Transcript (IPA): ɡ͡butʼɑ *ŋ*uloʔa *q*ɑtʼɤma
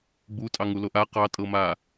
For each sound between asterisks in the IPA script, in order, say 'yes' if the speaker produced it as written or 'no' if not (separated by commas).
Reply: yes, yes